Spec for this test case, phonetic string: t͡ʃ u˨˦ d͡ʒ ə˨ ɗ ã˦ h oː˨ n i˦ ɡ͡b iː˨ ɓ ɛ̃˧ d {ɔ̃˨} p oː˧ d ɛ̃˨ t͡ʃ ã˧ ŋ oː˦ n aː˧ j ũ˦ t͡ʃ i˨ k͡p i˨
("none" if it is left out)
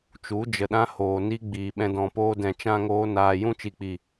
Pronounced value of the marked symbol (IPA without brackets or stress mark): ɔ̃˨